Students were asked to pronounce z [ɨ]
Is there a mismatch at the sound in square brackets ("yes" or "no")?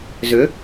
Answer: yes